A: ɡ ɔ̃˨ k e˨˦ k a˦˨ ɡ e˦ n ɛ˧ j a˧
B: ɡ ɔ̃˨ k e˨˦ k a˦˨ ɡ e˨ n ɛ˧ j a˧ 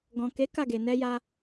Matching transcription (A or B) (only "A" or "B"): B